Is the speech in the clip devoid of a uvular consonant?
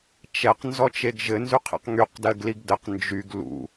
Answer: no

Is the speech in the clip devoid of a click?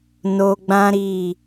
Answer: yes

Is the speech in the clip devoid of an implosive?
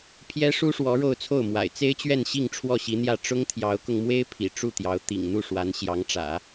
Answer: yes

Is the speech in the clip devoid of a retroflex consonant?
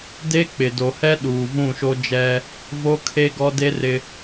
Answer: yes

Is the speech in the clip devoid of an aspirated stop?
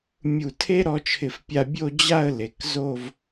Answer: no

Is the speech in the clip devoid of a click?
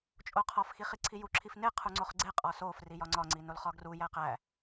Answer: no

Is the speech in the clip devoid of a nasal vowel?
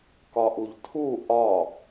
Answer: yes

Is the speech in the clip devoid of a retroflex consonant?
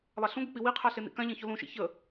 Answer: yes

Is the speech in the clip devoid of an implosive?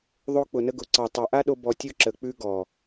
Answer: no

